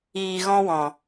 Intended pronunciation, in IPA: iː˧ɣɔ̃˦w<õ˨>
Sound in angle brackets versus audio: incorrect: ɔ̃˨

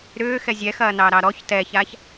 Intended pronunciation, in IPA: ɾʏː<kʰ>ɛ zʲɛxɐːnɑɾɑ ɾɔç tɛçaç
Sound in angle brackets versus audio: incorrect: x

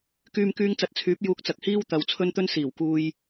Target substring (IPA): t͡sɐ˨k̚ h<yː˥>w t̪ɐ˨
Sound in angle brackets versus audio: incorrect: iː˥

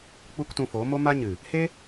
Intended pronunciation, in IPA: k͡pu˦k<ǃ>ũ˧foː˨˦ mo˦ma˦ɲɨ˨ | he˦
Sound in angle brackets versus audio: incorrect: t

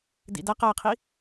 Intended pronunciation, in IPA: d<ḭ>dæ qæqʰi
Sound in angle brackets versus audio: correct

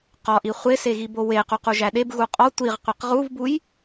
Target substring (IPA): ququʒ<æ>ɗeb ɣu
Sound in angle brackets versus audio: correct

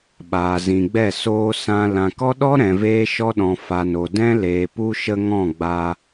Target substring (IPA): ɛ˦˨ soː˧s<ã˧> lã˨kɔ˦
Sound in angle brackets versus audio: correct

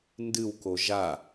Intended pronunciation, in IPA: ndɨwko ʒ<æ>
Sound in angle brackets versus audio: incorrect: a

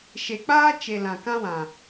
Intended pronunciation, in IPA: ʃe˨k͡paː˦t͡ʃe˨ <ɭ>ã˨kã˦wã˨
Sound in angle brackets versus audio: incorrect: l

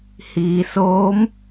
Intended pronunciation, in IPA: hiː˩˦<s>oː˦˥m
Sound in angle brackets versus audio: correct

